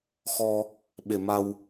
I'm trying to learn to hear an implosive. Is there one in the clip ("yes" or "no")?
yes